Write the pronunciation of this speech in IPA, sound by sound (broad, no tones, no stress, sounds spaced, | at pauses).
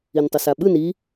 i n tˤ ɤ s a ɓ ɯ n i